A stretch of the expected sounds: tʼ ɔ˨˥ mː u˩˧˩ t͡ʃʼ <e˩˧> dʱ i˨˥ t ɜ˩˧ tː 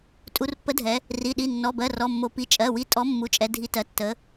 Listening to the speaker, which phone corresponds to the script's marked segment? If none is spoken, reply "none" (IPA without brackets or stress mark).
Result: ɛ˩˧